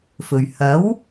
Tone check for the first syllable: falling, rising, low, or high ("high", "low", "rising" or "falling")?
low